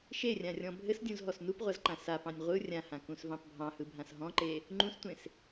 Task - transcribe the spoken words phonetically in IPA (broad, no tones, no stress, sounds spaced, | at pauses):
ʃ e rʲ ã rʲ ɔ̃ bʱ ɘ s dʲ ũ z ɦ ɔ s n u p ʁʷ a z ǃ ã s a p ɑ̃ nʲ ʁʷ ɯ rʲ ã h ã k ũ s v ɑ̃ p bʱ ɑ̃ h ɯ bʱ ã s ɦ ɔ̃ ǃ e | ŋ͡ǃ ũ s tʷ ẽ s